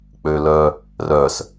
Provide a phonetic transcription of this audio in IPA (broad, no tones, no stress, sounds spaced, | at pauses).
k͡p ø l œ | r œ s